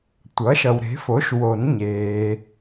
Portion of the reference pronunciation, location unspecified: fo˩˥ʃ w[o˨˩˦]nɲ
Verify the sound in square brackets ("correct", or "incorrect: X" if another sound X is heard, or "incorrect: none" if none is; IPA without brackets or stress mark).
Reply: correct